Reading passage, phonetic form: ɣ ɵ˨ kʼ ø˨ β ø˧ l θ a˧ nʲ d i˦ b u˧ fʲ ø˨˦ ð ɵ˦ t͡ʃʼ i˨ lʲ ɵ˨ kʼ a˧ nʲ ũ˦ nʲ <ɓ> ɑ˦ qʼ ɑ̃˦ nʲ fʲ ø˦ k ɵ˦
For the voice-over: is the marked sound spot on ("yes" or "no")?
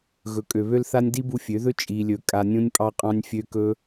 no